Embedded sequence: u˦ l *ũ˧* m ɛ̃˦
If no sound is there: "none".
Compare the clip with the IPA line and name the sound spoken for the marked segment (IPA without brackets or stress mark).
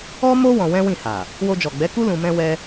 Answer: ũ˧